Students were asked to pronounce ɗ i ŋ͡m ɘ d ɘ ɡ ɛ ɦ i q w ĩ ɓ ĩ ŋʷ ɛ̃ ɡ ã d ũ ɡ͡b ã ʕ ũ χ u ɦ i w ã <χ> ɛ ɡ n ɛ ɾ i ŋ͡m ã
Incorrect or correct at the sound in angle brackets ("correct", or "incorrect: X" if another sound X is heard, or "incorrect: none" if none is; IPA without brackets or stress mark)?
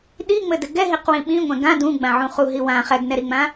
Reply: correct